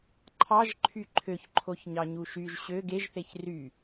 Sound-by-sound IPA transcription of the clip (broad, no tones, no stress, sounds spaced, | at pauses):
ǃʰ ɑ ʒ ǃʰ y ǃʰ ø ç ǃʰ o ç ɲ ɑ ɲ u ʃ y ʒ ɕ ø ɡ e ʒ θ e ç r y